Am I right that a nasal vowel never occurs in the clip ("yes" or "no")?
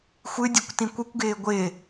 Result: no